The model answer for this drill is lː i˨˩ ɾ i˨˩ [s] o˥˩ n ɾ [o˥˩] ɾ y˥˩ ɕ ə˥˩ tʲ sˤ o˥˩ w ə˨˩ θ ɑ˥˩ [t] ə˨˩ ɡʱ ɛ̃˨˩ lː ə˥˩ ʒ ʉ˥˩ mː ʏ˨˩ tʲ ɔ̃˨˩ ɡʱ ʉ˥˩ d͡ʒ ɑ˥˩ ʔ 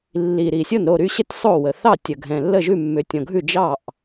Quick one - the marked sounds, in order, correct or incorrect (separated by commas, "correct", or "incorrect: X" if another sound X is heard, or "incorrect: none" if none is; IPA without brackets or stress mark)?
incorrect: sʲ, correct, incorrect: tʲ